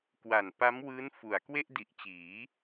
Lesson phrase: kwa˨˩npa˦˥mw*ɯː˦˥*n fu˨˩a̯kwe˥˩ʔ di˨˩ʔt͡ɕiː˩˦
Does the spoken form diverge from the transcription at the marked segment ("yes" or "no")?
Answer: no